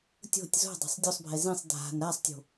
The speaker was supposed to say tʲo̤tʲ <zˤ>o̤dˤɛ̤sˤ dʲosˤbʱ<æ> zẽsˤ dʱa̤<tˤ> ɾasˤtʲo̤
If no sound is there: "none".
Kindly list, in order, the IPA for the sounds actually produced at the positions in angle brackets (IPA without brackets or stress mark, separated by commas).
z, ɛ, n